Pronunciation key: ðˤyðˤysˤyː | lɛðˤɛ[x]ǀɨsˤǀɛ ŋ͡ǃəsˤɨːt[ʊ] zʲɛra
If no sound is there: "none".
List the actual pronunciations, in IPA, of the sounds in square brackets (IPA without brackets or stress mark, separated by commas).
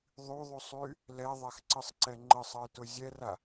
x, ʊ